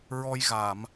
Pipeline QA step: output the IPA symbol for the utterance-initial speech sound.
ɹ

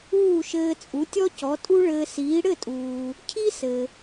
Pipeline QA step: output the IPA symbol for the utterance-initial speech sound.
uː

